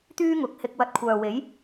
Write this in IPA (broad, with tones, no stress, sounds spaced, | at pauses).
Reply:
t̪ yː˥ ŋ ʊ˨˥ k̚ h ɪ˧ k̚ w ɐ˧ t̚ kʷʰ œː˨ w e˨˥ j